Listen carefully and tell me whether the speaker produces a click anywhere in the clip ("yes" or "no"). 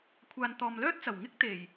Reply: no